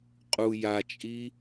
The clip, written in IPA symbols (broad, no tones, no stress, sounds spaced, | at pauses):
qʼ u j a t͡ʃʼ i